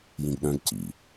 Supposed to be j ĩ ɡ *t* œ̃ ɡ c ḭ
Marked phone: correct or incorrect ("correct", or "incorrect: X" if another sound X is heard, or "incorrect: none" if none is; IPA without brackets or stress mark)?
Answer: incorrect: ɗ